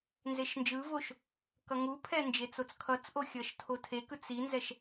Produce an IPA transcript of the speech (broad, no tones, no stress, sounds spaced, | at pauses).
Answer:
n z e ʃ n d͡ʒ ɯ v o ʃ | k ʌ ŋ u pʰ ɛ n d͡ʒ e t͡s o t͡s kʰ ʌ t͡s ʔ o xʲ ʌ ʃ tʰ o tʰ e k ɯ t͡s i n z ɛ ʃ